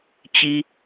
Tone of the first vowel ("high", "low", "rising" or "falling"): high